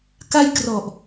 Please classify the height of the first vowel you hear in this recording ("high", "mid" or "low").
low